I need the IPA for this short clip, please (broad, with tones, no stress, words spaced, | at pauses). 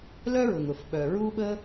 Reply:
lœ˥ɹʊ˩ŋʊ˩f ɓœ˩ɹu˥ɓə˥